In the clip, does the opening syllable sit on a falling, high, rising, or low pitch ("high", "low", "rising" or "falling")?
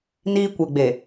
high